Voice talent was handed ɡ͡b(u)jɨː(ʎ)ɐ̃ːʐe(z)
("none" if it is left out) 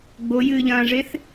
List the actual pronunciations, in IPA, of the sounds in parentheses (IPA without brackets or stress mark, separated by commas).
o, ʎ, θ